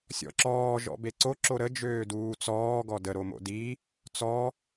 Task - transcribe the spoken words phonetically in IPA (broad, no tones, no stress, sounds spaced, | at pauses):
sʲ ɔ̰ ǁ ɔː ʒ ɔ̰ b e ǀ o ǁ o ɾ ə d͡ʒ øː d uː t͡s ɔː ɡ ɔ d ə ɾ o m o̰ d i | t͡s ɔ